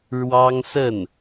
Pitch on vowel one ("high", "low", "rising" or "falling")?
high